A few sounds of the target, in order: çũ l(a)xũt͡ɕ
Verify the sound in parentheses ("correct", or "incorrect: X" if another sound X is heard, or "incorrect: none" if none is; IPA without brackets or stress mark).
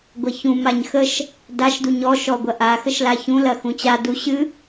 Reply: incorrect: ɐ